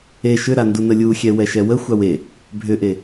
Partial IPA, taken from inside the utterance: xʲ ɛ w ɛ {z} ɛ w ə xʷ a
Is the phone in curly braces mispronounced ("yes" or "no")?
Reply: yes